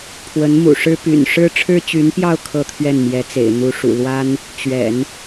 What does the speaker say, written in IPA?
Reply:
pʰ w ə˧˥ n m ṵ˨˩ ʂ ɻ̩˥ p y̰˨˩ n ʂ ɻ̩˥ ʈ͡ʂʰ ɻ̩˥ t͡ɕ y˧˥ n p j ɑ˥˧ ʊ̯ kʰ ɤ˥˧ t̪ʰ ɥ ɛ˥˩ n m j ɛ˧˥ t͡s ḛ˨˩ ɪ̯ n̪ u˧˥ ʂ ṵ˨˩ l w a˥ n | t͡ɕ ɥ ɛ̰˨˩˦ n

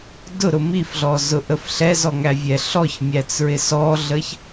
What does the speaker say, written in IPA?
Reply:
d ʊ ɾ ʊ m i f ɮ ɔ z ʊ ʔ ə f ɬ ɛ z ɔ ŋ æ vʲ ɛ ɬ ɔ ç mʲ æ t͡s ɹ ɪ s ɔ ɮ ə ç

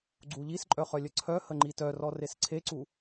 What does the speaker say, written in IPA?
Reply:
ɡ͡ǀ u ʎ i s ǃʼ œ χ œ lʲ ə ǀʰ œ h ə ŋ͡ǃ i t œ r ɔ r e s ǀʰ e ǀ u

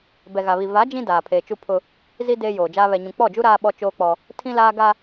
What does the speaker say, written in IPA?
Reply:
b ɛ˨ ɣ a˨ β i˨ v a˨˦ d͡ʒ ĩ˦ d aː˨ pʰ eː˨ t͡ʃ u˦ pʰ ʊ˦ | z i˦ d eː˦ j oː˨ d͡ʒ aː˦ β ɛ˨ ɲ ũ˨ k͡p ɔ˦˨ d͡ʒ u˦ ɾ aː˦ ɓ ɔ˦ t͡ʃ oː˦ k͡p ɔ˦ | tʰ ĩ˦ l aː˦ ɡ a˦

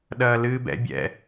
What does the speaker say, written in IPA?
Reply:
ɗ ɐː l ɨː b ɛ̰ bʲ ɛ̰

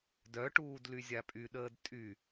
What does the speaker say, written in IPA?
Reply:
d œ ʈ uː d l y zʲ a pʼ y ɗ əː d tʼ y

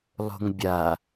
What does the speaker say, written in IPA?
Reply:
lˠ o̤ ŋ bʲ a

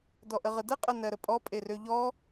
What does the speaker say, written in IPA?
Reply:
d ɔ ʔ ə ʁ ə d ə qʼ ə n ɜ ɾ ə pʼ ɔ pʼ e r ø ʎ ɔ

